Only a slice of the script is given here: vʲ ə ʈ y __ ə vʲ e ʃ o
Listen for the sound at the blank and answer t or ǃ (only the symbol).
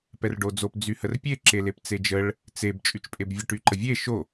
ǃ